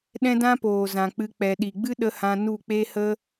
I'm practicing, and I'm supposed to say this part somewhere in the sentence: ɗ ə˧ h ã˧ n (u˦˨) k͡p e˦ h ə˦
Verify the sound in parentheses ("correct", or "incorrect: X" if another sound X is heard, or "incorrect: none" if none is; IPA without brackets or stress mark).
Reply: correct